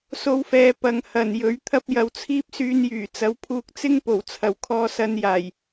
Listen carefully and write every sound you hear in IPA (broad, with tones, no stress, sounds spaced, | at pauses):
s o˧ w f ɛː˨˧ p ɐ˨ ŋ h ɐ˨˩ n j ɵ˨˥ ɥ t̪ʰ ɐ˥ p̚ j ɐ˧ w t͡sʰ iː˥ p̚ s yː˧ n j yː˨˩ t͡s ɐ˨˥ w pʰ uː˧ k̚ t͡s ɪ˥ ŋ p o˨˩ w t͡sʰ ɐ˨˩ w kʰ ɔː˨ s ɐ˨˧ n j aː˨˩ j